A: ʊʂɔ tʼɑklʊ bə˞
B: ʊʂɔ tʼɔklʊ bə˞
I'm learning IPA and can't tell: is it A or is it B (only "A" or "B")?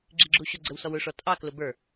A